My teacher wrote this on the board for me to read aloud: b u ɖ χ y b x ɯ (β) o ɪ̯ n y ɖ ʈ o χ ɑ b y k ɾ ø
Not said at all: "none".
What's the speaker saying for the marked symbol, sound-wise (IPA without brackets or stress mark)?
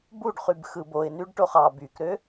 b